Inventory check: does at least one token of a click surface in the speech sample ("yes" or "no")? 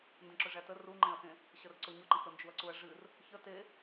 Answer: yes